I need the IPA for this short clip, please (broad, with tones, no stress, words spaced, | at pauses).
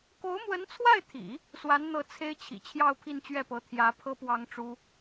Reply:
ko˧˥ʊ̯mwə˧˥nt͡sʰwa˥˩ɪ̯t̪ʰḭ˨˩˦ | swa˧˥nn̪ɤ˧˥ t͡sʰe˥ɪ̯t͡ɕʰḭ˨˩ t͡ɕʰjɑ˥˧ʊ̯pʰi˥˧nt͡ɕɥɛ˥˩pɤ˧˥ t̪ʰjä˧˥ pʰɤ˥pwɑ˥ŋʈ͡ʂu˥